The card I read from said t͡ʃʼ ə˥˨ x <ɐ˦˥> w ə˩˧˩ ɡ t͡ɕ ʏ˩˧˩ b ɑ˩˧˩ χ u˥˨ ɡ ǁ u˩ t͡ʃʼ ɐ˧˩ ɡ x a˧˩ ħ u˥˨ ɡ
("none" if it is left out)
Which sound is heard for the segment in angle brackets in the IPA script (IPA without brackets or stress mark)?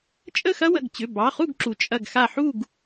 ɐ˦˥